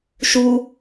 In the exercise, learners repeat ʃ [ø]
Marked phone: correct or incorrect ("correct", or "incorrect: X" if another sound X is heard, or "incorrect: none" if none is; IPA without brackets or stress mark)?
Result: incorrect: u